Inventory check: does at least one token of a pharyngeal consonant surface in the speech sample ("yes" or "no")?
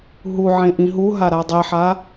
yes